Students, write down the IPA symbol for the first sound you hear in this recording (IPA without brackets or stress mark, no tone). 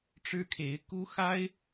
ʈ͡ʂ